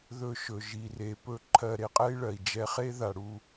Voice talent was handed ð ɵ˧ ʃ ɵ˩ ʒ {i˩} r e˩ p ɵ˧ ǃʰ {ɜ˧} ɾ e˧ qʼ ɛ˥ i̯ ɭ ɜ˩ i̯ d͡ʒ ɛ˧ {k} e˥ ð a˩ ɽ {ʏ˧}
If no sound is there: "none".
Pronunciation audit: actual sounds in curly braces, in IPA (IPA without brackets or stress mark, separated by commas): i˩, ɜ˧, χ, u˧